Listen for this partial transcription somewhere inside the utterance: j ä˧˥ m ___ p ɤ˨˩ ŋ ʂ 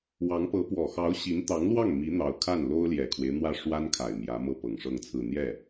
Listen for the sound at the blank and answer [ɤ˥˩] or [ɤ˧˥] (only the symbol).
ɤ˥˩